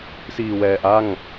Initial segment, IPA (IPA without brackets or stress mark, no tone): s